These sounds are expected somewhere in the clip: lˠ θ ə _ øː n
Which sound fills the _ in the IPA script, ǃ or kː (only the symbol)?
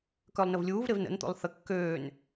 kː